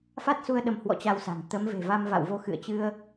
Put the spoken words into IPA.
fa˦˥t̚su˧ə̯ ɗə˧mhwɔ̰˧˥t͡ɕa˧wsa̤˨˩ŋ t̪ə˨˦m ve̤˨˩va˧mva̰˧˨wvo˧ xɨ̰˧˨ə̯t͡ɕɨ˧ə̯

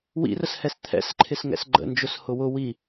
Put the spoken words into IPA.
wḭrəshɛs t̪ʰɛ̰sǃʰɪsŋɛ̰s ɡ͡ǃə̰nd͡ʒʊshʊ wʊ wi

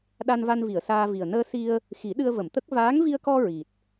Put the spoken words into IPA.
ɗa˧nva˧nvi˨˩˨ə̯ saː˧vi˨˩ə̯ nəː˧si˧ə̯ | xi˨˩˦ɗɨ˧ə̯və˨˩˨mt̪ə˦˥k̚ vaː˧˥ŋvi˧ə̯kɔ˧ ɹi˨˩t̚

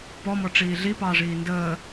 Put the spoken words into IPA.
pɔmɔʈ͡ʂiː ɮipɑːʐiː ndəː

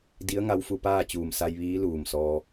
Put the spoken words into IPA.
di˧˥ə̯ ŋa˧˥wfu˧paː˥˨ t͡ɕuː˧˩msa˧j ʋiː˧˥luː˧˩msɔː˧

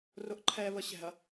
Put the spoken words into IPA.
rʊʔǃʰɛ βəɕɛ̤ɐ̯

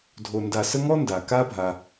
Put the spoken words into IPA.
dʱo˨ nda˨sə˦ŋɔ˥nda˩ ka˦bʱa˩

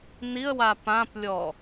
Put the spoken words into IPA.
niə̯wa pãplʲɔ

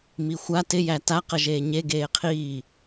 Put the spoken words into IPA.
mixʷa tɪ jæta qəʒeːɲe ɡeːqʰiː

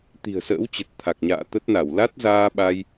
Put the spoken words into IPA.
t̪i̤˨˩ə̯sə̰ː˧˥wt͡ɕə˨˩t̚ t̪ʰa˨˩k̚ɲa̰ː˧˨ t̪ə˦˥t̚na˧˩w la˦˥t̚zaː˧ ɓa˧j

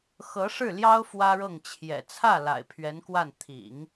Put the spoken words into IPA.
xɤ˧˥ʂɻ̩˥˩ ljɑ˥ʊ̯ fwä˥ɻɤ˥˩ŋt͡ɕʰjɛ̰˨˩ t͡sʰä˥˩ la̰˨˩ɪ̯pʰɥɛ˧˥nkwa˥˩n t̪ʰḭ˨˩˦ŋ

